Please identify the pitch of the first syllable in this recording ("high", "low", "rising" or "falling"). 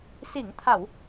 low